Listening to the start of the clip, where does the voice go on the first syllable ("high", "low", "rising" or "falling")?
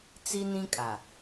high